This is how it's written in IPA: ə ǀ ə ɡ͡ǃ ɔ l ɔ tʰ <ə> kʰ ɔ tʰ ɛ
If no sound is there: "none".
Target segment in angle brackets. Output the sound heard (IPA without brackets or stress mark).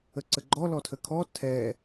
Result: ə